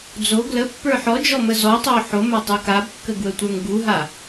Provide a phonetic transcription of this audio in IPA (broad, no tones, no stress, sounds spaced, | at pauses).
d͡z o ɡ l ə pː ə˞ ħ ɔ d͡ʒ ɔ m ə z ɔ tˤ o ħ o m a tˤ u k a b kː ə ɡ w ə tʷ ə˞ ŋ ɡ u ɦ a